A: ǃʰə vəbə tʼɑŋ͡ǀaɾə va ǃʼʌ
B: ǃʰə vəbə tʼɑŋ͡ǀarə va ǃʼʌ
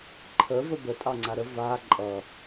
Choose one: A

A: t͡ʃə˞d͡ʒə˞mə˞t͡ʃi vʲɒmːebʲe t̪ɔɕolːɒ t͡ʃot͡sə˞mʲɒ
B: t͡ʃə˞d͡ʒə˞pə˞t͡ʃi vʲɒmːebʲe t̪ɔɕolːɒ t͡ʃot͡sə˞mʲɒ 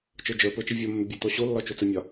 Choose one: B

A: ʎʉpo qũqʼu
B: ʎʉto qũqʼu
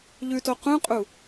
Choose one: B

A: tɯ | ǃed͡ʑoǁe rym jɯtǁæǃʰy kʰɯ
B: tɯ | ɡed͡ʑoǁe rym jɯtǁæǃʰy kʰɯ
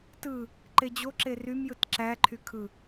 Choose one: A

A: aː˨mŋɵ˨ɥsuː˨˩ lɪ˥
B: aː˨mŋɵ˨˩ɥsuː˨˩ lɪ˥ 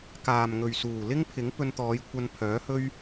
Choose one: A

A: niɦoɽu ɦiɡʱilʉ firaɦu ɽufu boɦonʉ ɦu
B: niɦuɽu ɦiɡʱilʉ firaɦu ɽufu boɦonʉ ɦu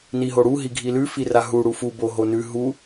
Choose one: A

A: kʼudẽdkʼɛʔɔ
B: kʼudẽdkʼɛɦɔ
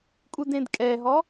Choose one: B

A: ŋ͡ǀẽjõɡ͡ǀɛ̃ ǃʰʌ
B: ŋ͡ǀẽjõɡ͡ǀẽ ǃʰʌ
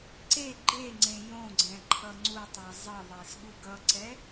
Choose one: A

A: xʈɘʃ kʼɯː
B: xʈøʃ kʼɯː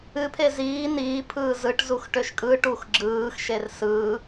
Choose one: B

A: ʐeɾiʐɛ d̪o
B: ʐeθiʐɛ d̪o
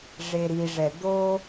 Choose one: A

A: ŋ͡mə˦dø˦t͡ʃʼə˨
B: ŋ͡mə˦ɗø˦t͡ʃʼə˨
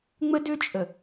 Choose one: A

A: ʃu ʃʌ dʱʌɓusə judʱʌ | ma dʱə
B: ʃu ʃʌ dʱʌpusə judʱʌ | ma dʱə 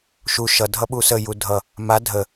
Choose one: A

